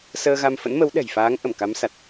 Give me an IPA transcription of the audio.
s əː˧ ɣ a˧ m f ə̰˧˥ n m ə˨˦ w ɗ ɛ̤˨˩ j f aː˨˦ ŋ ʔ ə˧˩ m k a˨˦ m s a˨˩ t̚

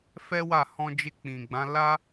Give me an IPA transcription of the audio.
f ɛ˦ w a˦˨ h ɔ̃˧ d͡ʒ e˧ k͡p ĩ˨ ɡ͡b ã˨˦ l a˦

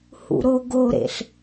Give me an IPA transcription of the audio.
h ṵ ɾ o ɡ o ɾ ḛ ɬ

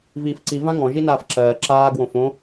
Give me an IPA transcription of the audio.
v iː f ǀ i v ã ŋ ɔ̃ ʒ i n aː f ǁ ɜː ǁ aː ɡ w õ f õ

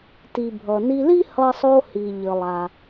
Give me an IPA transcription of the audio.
t i˩ bʱ ʌ˩ n i˧ l i˥ h ʌ˧ sˤ o˧ h i˩ ʎ ə˩ lˠ a˩

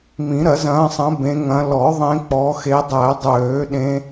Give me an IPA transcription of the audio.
m ĩ˨˩˦ ɾ ɐ˨˩˦ z ɐ̃ː˨˦ sˤ ɐ̃˨˦ b ẽ˨˦ ŋ ɐ̃˨˦ l ɔ˨˩˦ ðˤ ẽ˨˦ k͡p ɔ˨˦ x e˨˦ dˤ æ˨˩˦ dˤ øː˨˩˦ ɗ ẽ˨˦

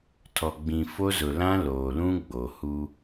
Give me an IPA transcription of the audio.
tʰ ɔ˨ ɡ͡b ĩ˨ f o˦ z ʊ˨ l ã˦ l oː˨ l ũ˦ ɡ͡b o˨ h u˦

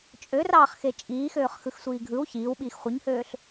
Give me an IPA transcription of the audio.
t͡ʃʼ ø r ɑː χ x e t͡ʃʼ iː x øː χ x ɯ x sʷ iː ɡʱ ɯ w ç iː w ɓ iː x χʷ ɯ ɲ h øː ɬ

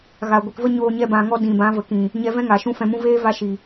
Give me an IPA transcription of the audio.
ɣ a˨ ɡʷ i˨ k v ə˦ ɲ oː˧ ɲ ɛ˦ b ã˧ ŋ ɔ˦ d ĩ˨ b ã˨˦ v ə˨ k ĩ˨ | ɲ ɛ˧ v ɛ̃˦ ŋ a˨ ʃ ũ˦ f ɛ̃˧ m ũ˦ v eː˦ v a˧ ʃ i˨

